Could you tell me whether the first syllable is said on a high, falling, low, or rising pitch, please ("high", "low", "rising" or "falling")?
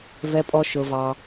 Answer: high